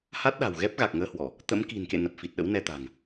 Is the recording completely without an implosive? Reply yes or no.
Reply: no